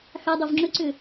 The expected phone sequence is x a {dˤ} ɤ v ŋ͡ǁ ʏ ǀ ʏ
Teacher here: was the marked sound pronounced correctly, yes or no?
yes